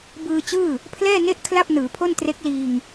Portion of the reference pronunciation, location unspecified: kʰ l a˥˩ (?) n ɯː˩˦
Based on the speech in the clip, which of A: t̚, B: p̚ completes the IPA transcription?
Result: B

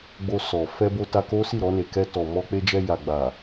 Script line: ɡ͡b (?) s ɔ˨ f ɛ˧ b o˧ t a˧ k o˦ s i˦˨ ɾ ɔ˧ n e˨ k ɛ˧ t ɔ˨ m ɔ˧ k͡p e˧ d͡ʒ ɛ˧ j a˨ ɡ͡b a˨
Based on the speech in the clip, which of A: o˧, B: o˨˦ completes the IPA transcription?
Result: A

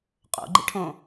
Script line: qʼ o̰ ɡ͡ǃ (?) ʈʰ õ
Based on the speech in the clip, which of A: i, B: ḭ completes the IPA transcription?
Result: B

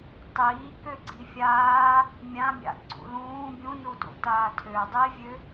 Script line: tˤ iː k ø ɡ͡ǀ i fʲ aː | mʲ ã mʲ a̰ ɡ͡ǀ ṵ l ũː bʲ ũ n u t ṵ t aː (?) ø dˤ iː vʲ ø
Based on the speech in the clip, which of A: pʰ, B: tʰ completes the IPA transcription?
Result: B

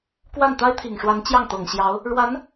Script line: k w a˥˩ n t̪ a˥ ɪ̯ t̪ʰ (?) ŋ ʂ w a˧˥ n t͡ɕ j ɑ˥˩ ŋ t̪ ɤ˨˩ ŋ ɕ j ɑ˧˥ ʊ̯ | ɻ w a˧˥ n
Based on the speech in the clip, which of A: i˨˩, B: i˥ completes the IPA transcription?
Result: A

